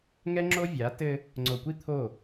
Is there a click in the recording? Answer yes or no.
yes